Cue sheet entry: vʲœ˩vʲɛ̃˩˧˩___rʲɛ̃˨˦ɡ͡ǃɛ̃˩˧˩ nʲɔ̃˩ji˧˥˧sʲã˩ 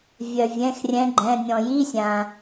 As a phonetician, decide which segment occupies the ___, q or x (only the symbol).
x